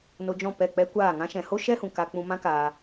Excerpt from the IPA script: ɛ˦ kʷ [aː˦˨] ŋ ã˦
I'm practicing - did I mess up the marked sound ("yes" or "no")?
no